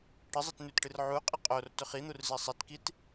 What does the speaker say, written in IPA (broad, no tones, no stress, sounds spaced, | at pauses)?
ʈ ɨ zˤ i t n ʉ t ʈ ɨ r ʕ u qʼ i qʼ o r t ɵ χ i n̪ u r z i sˤ e t k i t